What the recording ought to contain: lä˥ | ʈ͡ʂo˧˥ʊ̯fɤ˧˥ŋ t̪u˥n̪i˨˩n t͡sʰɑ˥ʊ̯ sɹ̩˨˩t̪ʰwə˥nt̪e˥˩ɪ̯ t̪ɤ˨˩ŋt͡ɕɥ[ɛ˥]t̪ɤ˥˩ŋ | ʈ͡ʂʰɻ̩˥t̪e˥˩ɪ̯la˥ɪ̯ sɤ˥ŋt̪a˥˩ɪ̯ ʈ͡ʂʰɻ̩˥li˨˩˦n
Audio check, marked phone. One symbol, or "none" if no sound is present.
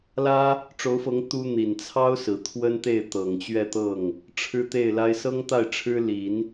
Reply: ɛ˥˧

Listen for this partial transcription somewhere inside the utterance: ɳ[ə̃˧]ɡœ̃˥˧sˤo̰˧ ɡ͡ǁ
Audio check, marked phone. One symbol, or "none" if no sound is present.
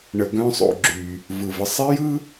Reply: ə˧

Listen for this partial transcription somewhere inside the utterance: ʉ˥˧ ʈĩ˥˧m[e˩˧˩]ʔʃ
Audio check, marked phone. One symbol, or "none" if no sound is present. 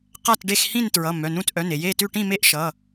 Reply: e˥˧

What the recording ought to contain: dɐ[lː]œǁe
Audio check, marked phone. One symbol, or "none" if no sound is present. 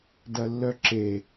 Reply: lː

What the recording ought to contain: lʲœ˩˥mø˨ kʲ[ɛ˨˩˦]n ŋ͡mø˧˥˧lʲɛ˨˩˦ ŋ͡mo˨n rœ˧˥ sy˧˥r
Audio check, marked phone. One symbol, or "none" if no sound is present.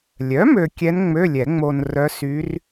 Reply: ɛ˧˥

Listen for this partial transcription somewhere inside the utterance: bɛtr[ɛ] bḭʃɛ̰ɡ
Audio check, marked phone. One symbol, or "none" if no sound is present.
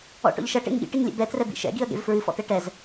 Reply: ɛ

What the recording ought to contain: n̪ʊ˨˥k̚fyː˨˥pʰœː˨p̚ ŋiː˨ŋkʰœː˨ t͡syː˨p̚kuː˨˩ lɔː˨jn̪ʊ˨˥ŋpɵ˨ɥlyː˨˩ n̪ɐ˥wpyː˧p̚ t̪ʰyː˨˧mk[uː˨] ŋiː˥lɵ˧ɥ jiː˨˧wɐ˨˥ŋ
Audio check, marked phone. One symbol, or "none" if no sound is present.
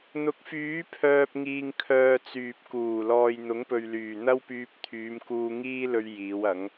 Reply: uː˧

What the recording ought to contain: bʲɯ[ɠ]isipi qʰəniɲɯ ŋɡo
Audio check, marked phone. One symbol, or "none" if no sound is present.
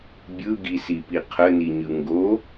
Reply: ɡ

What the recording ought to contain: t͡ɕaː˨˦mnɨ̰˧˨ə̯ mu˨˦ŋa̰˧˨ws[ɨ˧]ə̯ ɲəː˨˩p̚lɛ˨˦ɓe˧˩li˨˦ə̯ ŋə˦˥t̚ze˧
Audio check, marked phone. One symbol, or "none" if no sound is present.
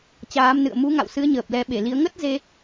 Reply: ɨ˨˦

